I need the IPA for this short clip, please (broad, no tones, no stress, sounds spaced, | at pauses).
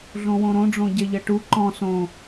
ɮ õ w õ ɾ õ ɖ͡ʐ õ ɟ ɛ ʎ ɐ ʈ u ǃ ɔ̃ s õ